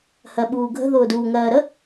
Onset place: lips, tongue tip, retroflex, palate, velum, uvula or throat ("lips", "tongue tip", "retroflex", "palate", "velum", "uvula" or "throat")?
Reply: throat